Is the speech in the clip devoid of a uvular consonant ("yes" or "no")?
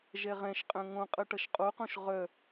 no